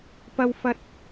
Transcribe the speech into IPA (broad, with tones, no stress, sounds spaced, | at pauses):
p ɐ˥ w f ɐ˥ t̚